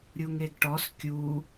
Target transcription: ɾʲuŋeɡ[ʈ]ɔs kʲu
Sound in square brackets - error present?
no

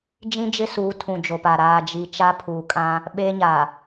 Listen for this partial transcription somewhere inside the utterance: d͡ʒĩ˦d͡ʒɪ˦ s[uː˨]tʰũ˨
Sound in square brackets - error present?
yes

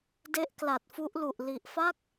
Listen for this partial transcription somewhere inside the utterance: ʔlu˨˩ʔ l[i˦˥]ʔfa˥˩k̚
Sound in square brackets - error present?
yes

